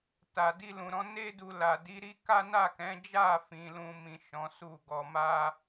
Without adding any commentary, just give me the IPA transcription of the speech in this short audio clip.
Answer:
t a˨ d i˧ l ũ˨ ɾ ɔ̃˨˦ n e˦ d u˧ l a˨ d i˨˦ ɾ i˦ k a˦ n a˦˨ k ɛ̃˨˦ d͡ʒ a˦˨ f ĩ˨ l ũ˨ m ĩ˨ ʃ ɔ̃˨˦ s u˦˨ ɡ ɔ˧ m a˦

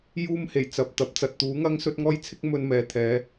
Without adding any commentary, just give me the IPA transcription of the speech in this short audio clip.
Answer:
j uː˥ m h e˨˩ j t͡s ɐ˨ p̚ t̪ ɐ˨˥ p̚ t͡s ɐ˨ t̚ t̪ uː˨˥ ŋ ɐ˥ ŋ s ɵ˥ t̚ ŋ ɔː˥ j t͡sʰ ɪ˥ k̚ m ɵ˧ n m ɛː˨ t̪ʰ ɛː˨˧

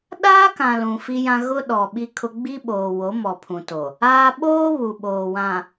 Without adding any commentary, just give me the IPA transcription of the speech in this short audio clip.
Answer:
ɗ aː˦ k ã˨ l ũ˨ f i˦ j ã˦ ɣ ʊ˦ ɗ ɔ˨ ɓ i˦ kʰ ʊ˦ ɡ͡b i˦ ɓ oː˨ w o˨˦ m ɔ˨ pʰ ũ˨ t o˨ | aː˦ ɓ oː˦ β u˨ ɓ oː˨ w ã˨

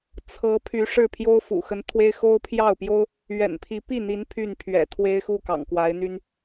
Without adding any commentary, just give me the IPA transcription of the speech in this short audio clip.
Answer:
t͡sʰ ɤ˧˥ pʰ y˧˥ ʂ ɻ̩˥˩ pʰ j o˥ ʊ̯ f ṵ˨˩ x ə˧˥ n t̪ʰ w e˥ ɪ̯ x o˥ ʊ̯ pʰ j ɑ˥˩ ʊ̯ p j o˥ ʊ̯ | ɥ ɛ̰˨˩ n pʰ i˧˥ p i˥˩ n̪ i˧˥ n pʰ y˥˩ n pʰ ɥ ɛ̰˨˩ t̪ʰ w e˥ ɪ̯ x u˥˩ k ɑ̰˨˩ ŋ k w a˧˥ ɪ̯ n̪ y˥ n

